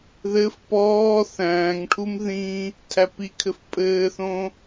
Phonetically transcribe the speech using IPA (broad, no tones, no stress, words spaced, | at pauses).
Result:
ðɘf pɔː θæ̃ːŋʈʰum ðĩ | tʰæpikʰɘf pʼɘːθõ